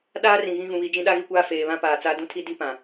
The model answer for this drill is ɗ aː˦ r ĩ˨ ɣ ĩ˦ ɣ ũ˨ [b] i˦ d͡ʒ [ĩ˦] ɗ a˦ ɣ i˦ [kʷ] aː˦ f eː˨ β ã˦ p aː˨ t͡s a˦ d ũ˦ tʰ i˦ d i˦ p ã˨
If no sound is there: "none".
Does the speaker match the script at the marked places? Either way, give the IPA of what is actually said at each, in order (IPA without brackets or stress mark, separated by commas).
β, ĩ˦, kʷ